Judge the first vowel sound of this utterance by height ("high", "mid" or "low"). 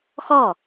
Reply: mid